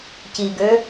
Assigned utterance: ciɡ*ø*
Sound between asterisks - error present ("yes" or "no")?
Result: no